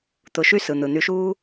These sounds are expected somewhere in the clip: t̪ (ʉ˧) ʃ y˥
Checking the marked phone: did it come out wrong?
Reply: yes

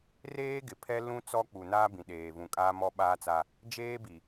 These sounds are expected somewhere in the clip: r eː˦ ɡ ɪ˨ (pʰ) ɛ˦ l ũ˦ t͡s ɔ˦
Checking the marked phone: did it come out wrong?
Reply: no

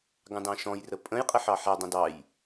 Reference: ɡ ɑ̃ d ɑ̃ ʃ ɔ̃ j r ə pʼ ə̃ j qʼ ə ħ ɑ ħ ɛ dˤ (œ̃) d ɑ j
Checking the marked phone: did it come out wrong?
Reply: yes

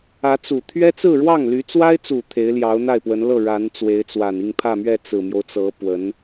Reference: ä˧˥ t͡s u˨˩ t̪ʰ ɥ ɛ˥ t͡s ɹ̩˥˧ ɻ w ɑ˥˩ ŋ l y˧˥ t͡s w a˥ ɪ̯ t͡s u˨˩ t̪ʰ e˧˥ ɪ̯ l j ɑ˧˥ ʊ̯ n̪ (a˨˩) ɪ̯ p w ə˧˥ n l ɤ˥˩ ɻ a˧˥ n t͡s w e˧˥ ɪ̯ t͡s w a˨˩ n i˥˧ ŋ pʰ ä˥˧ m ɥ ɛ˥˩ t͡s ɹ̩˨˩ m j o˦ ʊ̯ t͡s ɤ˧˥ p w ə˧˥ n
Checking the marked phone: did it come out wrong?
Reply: yes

